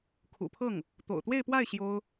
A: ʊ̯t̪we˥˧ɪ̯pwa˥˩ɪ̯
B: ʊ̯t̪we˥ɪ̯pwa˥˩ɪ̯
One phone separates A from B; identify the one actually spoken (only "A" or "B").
A